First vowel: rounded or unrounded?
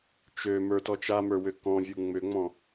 rounded